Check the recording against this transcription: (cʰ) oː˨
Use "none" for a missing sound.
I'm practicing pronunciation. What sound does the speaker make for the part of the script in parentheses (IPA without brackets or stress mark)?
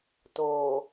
t